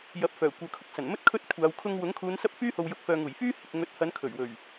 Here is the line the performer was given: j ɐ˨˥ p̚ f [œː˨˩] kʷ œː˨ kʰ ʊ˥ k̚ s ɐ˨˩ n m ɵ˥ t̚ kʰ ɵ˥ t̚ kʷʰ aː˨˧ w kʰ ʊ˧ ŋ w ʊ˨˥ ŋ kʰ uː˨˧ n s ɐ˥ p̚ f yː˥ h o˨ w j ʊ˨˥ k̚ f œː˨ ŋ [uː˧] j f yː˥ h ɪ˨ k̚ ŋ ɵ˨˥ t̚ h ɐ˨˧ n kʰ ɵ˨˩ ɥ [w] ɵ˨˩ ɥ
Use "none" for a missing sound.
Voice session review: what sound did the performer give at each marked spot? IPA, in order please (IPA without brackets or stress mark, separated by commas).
œː˨˩, uː˨˩, w